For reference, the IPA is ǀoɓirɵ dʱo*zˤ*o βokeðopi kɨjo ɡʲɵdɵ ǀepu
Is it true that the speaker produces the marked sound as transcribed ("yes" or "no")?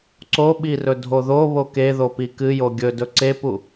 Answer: no